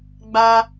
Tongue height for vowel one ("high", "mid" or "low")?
low